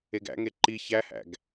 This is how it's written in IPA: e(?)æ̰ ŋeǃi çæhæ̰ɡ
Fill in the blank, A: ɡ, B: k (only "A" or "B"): A